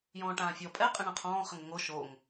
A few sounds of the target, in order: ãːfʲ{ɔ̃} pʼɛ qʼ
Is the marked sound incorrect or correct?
incorrect